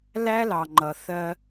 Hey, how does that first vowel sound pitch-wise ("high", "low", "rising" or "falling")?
high